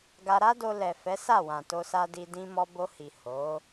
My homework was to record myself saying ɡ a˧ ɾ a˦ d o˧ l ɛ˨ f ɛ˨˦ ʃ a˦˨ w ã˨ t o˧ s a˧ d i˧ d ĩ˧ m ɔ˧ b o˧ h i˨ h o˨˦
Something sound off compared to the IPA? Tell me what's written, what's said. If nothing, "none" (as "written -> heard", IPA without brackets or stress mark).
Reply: ʃ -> s